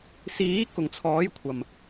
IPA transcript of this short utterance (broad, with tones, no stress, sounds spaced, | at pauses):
s iː˨˥ k ʊ˨˩ ŋ t͡sʰ ɔː˨˥ j kʷʰ ɐ˨˩ m